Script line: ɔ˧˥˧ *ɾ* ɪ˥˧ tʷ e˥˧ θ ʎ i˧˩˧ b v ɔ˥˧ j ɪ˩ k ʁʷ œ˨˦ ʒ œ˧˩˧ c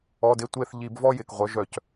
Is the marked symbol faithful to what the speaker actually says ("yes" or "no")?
no